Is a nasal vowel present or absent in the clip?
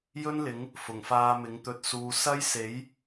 absent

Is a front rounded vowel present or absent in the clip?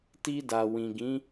absent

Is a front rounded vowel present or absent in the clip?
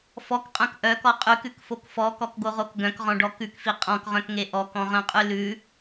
present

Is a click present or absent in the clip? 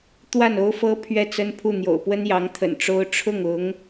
absent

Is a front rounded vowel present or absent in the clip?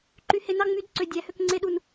present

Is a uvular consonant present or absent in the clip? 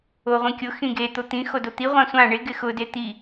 present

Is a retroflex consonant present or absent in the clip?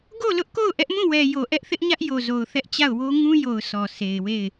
absent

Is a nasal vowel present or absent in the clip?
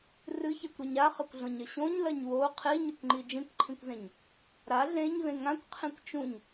present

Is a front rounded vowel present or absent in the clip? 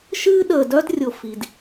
present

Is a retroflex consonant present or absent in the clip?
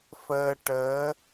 present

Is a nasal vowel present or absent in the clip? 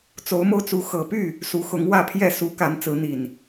absent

